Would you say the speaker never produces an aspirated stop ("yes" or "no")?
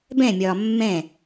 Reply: yes